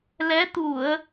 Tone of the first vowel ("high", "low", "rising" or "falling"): rising